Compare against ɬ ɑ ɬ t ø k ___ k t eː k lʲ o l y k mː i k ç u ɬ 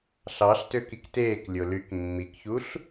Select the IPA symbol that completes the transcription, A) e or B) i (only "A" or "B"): B